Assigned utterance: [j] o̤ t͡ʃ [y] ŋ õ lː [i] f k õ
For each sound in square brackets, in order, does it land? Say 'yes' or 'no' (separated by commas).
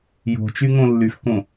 yes, yes, no